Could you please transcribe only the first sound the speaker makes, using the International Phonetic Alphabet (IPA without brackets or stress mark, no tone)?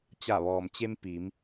t͡ɕ